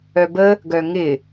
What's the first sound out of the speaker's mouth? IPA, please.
œ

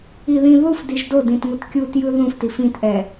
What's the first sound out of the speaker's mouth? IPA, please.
i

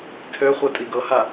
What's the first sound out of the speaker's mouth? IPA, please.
tʰ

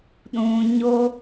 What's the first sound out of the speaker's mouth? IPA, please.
ɗ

